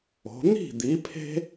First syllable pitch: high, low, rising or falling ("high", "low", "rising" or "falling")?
rising